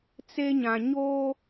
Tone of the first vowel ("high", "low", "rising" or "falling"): high